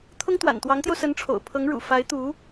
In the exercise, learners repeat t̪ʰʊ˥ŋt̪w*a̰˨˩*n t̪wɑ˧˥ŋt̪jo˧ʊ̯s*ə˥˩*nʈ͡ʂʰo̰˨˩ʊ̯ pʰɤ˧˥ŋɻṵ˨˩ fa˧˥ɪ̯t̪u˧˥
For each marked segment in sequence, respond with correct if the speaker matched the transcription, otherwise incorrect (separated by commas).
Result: correct, incorrect